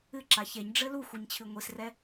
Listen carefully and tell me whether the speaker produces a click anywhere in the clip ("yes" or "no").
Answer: yes